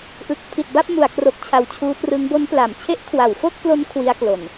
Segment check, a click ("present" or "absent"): absent